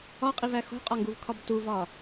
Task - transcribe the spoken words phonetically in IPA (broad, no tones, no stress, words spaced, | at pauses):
ɒqʼivæ xo̤qʼɒŋɡuvkʰɒb tuvɒ